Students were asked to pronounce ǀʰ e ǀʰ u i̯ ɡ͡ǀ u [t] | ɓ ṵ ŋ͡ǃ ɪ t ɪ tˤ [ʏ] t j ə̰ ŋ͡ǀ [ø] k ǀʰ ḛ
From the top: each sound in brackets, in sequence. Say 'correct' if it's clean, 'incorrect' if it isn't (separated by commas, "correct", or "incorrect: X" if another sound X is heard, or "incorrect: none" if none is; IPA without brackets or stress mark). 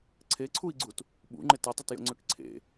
correct, correct, correct